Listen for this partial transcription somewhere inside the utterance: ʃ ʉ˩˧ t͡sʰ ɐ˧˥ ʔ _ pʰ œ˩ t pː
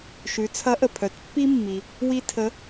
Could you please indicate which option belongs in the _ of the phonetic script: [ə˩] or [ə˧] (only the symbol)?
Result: ə˩